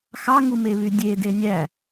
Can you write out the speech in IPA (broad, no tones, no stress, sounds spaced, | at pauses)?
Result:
x ɑ ŋ u m e β y dʲ e d e nʲ æ